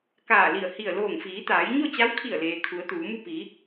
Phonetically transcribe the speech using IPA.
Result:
k aː˧˩ l i˧˩ ə̯ h i˧˩ ə̯ l oː˧˩ ŋ f iː˩˧ t̪ aː˩˧ j ɲ o˥˨ t͡ɕ a˧˥ w kʰ i˧˩ ə̯ l eː˩ kʰ u˩˧ ə̯ t̪ uː˩˧ m u˥˨ p i˩˧

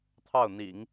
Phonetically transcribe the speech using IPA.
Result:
t̪ʰ ɑ˥˩ ʊ̯ n̪ ḭ˨˩˦ ŋ

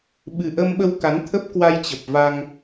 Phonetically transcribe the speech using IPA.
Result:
ɓ ɨ˨˩ ʔ əː˧ m ɓ ə˧ w k a˨˦ n t̪ʰ ə˦˥ p̚ k w a˧ j t͡ɕ ə˨˩ p̚ v a˧ ŋ

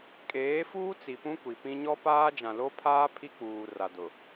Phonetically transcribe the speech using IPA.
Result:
kʼ eː˨˦ f uː˦ t͡s i˨ p ũ˦ kʷ i˨ p ĩ˦ ɲ ɔ˦ p aː˦ d͡ʒ ã˨ l o˦ pʰ aː˦ pʰ i˦ k͡p uː˨ r a˨ d ʊ˨

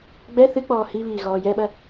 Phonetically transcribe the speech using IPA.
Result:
ɡ͡b ɛ θ ɨ k͡p ɔː h i β iː ɣ ɔː j ɛ ɓ ɐ

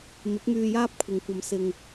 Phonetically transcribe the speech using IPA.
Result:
m ɪ˨˥ k̚ m yː˧ j aː˥ p̚ kʷʰ ɪ˨ ŋ kʷ ɐ˧ m s ɪ˧ ŋ

